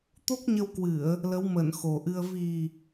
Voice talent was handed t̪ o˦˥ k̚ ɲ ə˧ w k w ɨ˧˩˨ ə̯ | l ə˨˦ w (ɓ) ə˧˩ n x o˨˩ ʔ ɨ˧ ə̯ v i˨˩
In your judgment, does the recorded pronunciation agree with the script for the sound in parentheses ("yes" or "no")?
no